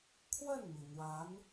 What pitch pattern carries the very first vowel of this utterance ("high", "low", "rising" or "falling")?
falling